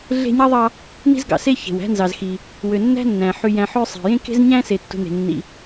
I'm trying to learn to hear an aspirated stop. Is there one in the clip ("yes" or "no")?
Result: no